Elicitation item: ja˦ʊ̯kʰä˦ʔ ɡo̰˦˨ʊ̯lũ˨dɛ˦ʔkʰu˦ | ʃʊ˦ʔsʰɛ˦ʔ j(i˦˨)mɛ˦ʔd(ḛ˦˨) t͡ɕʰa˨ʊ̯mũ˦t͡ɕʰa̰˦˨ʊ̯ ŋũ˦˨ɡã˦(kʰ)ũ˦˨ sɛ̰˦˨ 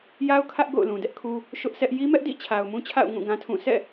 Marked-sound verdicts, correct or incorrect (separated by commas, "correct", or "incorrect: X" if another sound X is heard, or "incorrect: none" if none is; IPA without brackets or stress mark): incorrect: i˦, incorrect: ḭ˦˨, incorrect: tʰ